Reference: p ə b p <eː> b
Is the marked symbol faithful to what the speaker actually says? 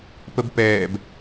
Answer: no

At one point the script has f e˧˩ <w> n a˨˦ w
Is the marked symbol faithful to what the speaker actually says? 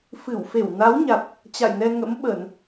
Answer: yes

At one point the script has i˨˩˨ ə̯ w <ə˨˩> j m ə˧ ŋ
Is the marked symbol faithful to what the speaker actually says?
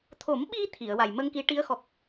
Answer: no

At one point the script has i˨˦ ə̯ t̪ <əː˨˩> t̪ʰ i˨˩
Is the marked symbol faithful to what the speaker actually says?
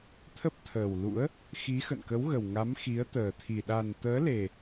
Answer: yes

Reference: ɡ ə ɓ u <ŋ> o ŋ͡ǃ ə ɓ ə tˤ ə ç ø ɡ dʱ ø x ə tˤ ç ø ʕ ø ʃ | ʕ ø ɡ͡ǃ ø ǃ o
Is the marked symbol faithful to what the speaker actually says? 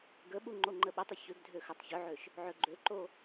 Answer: no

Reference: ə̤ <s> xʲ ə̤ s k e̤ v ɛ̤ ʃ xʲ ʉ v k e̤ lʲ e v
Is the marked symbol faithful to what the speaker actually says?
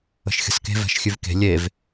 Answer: no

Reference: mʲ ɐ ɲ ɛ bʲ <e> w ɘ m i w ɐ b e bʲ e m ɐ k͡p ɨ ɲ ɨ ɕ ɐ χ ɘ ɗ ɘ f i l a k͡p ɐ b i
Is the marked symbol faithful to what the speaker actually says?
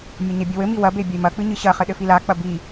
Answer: no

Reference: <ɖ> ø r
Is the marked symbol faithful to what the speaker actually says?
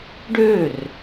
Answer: yes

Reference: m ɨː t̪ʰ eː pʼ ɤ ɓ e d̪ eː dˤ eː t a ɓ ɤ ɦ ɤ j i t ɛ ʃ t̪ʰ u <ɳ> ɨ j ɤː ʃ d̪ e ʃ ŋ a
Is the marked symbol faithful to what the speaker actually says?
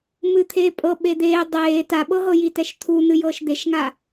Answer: no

